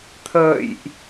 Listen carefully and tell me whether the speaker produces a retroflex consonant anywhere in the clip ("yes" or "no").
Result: no